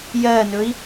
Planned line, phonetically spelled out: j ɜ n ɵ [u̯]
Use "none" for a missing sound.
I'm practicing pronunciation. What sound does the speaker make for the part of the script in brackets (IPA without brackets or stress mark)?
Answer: i̯